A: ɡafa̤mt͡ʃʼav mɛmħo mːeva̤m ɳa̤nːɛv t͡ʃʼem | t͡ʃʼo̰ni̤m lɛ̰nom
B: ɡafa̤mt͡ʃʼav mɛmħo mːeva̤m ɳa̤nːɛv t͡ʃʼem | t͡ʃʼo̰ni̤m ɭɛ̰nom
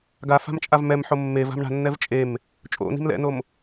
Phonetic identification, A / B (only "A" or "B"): A